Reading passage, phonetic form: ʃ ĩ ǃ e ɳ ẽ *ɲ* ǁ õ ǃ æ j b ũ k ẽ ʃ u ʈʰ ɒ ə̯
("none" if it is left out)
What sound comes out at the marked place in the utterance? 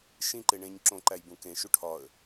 ɲ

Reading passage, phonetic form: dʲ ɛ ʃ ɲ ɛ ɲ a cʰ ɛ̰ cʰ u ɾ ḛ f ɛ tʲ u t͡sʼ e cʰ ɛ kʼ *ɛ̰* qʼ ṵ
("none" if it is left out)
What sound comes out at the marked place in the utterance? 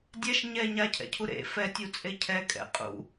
ɛ̰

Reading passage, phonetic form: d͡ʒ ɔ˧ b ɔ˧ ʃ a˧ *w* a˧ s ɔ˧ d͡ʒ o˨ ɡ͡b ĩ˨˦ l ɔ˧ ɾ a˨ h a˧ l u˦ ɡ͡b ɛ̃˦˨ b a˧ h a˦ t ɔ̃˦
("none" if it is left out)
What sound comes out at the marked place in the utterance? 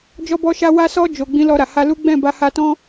w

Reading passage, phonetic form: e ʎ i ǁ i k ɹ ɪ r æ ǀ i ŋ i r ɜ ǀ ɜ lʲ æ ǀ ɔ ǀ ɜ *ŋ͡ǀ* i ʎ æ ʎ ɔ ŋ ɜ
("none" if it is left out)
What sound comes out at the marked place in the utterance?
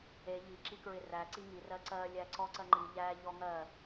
ŋ͡ǃ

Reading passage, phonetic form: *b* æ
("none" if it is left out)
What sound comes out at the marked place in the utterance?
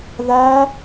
ð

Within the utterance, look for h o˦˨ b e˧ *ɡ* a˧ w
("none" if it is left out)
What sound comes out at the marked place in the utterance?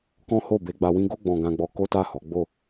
ɡ͡b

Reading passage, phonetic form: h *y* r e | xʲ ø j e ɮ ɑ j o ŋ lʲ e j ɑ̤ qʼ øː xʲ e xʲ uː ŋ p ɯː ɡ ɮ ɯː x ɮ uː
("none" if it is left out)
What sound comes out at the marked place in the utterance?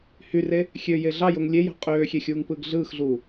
y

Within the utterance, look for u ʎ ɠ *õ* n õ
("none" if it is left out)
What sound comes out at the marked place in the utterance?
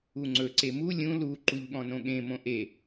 ɔ̃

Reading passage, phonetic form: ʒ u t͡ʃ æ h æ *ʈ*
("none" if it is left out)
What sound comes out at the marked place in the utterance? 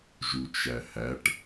ʈ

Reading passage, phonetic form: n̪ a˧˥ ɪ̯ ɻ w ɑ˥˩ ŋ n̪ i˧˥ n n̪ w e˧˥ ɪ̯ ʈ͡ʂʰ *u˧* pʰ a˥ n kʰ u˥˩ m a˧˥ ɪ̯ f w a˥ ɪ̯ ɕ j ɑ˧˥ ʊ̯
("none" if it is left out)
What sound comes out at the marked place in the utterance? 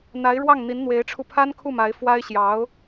u˧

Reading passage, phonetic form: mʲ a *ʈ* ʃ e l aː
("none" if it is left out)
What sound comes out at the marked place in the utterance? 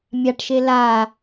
ʈ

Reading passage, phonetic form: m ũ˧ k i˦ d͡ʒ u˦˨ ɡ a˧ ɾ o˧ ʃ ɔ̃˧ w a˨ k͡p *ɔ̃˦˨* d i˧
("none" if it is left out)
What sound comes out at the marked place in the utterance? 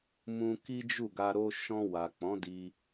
ɔ̃˨˦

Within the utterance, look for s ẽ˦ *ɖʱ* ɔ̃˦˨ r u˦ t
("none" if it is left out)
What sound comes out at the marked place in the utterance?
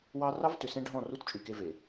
ɖʱ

